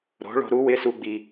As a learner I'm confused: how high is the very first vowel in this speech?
mid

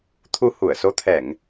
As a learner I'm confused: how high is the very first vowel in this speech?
high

